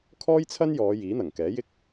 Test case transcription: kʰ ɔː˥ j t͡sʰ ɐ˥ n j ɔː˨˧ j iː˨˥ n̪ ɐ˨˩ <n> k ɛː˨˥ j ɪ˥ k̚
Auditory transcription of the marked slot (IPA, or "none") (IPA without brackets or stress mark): ŋ